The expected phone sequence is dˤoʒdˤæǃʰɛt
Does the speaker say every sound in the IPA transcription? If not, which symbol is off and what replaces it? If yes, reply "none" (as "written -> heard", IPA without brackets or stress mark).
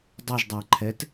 o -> ɤ